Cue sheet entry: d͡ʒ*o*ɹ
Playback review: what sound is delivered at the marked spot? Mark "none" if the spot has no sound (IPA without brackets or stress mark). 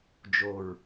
o